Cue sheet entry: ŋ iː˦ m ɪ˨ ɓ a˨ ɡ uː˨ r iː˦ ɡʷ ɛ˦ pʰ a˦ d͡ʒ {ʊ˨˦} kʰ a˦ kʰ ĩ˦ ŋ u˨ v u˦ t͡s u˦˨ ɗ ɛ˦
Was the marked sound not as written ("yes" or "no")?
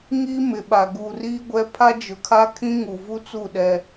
no